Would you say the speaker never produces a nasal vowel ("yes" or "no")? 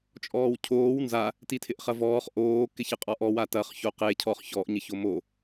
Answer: yes